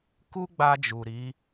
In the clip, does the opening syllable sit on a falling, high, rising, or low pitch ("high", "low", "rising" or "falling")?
high